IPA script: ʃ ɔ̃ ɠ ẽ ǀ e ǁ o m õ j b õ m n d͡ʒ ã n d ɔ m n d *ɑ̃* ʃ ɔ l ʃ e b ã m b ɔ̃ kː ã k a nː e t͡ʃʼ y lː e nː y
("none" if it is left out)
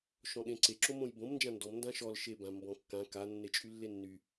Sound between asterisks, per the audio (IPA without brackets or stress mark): ã